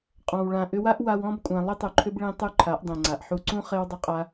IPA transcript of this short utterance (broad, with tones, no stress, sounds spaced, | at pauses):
qʼ ɔ̃˨ w ɭ ã˨ ʔ ʏ˧ w a˦ ʔ w a˧ w ɔ̃˦ b kʷʼ ã˧ lˠ ʏ˦ tˤ u˨ ǃʰ ʏ˦ b ɭ ẽ˧ tˤ u˦ ǃʰ a˨˦ ʔ dˤ ẽ˨ ŋ͡ǀ a˨ ʔ ħ u˧ ǀ ũ˦ χ e˦ w dˤ ʊ˦ qʼ a˦